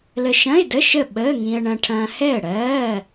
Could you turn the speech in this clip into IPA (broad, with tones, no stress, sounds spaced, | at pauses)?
l ə˧ ʃ ɐ̃˧˥˧ ɪ̯ d ə˧˥˧ ʃ ə˥˨ ɓ əː˧˥˧ ŋ ĩ˧ ə̯ ɳ ɐ̃˧ ʈʰ ɐ̃ː˧ h ɛ˥˨ ə̯ ɽ ɜː˧˥˧